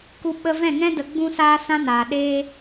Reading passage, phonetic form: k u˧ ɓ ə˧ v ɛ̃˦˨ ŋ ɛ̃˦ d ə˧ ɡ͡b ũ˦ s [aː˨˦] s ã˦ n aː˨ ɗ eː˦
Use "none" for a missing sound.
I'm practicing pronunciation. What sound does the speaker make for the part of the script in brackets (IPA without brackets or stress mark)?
aː˦